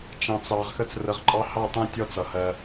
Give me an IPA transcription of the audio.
t͡ʃɑ̃˨t͡sɑ˨ʁ xə˧t͡srə˨ʁǃʼɑ˧ hɑ˦˨tˤɛ̃˦ tʲɔ˦t͡sʌ˨hɜ˧

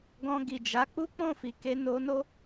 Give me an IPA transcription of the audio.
ɡɔ̃˧ɡi˨d͡ʒa˨˦ k͡pu˦k͡pɔ̃˦˨fi˨ke˧ no˧no˦

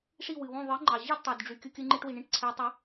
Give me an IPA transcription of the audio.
ʂi˥˩wɨ˩wõ˥˩ ðˤɨ˩˥ŋ͡ǃɑ˩ ʑɨ˥˩dtˤo˩dɖ͡ʐy˩ kʲɯ˧kʲɨ˧ŋ͡ǃi˧ʈ wi˩ɳĩ˥˩ʈǀʰɛ˩˥ tˤa˩˥

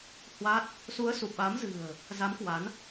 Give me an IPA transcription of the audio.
hwa˦˥t̚ | su˨˦ə̯su˨˩p̚ɓa˨˦mzɨ̤˨˩ə̯ | za˨˦mkwa˨˦n

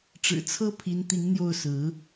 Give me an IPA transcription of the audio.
ʈ͡ʂɻ̩˨˩t͡sʰɤ˥ pʰi˧˥nt̪i˧˥ŋn̪jo˥˩ʊ̯sɹ̩˧˥

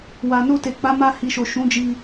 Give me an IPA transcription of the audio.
wa˨no˧te˨ k͡pa˨˦ma˧ hi˨ʃo˨ ʃũ˨˦d͡ʒi˧

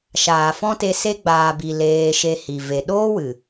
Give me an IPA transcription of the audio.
ʃaː˨fɔ̃˦te˧ se˧ɡ͡baː˨bi˨ leː˧ʃe˧hi˨ ve˨ɗoː˦wɨ˨

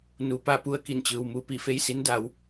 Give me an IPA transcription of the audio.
nu˩pa˥˨pu˧ə̯ ki˧˩nt͡ɕɯː˩wmu˧ piː˧˩fe˥˨jsi˧˥n da˩˧w

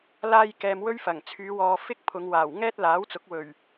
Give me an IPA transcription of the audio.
laː˥j kɛː˧m wɵ˥ɥfɐ˨˩ŋ t͡sʰyː˨˧wɔː˨ fɪ˥k̚ pʰʊ˨˧ŋwaː˨˩w ŋɛː˥t̚laː˨˥wt͡sʊ˨˥k̚ wɵ˨˩ɥ

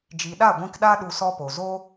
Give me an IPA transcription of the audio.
d͡ʒi˨ɗa˦˨ ɡʷĩ˧kɗa˦ ɗu˧sɔ˦po˨ zo˦

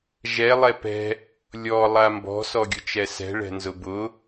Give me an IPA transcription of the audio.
ʒɛ lˠɛpɛ̤ | lʲɔ lˠambɔ̤ sɔɡʲʊt͡ʃɛsɛ̤ ɭɛ̤nzʊbʊ

